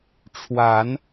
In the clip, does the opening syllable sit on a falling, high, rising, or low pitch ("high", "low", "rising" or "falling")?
rising